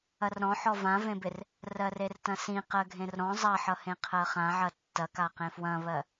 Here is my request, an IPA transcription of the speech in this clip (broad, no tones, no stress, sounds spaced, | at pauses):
ɐ r ɾ ɔ̃ ħ ɔ v ã v ẽ b ɪ r | r ɜ r e r t ɐ̃ s ĩ q ɜ ɡʱ ẽ r ɾ ɔ̃ zˤ ɐ ħ ʌ h ẽ qʰ ɜ χ ã ʕ ɐ tː ɐ k a q ẽ f w ɐ̃ β ɜ